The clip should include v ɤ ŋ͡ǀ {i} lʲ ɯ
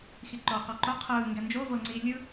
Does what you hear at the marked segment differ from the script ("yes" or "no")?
no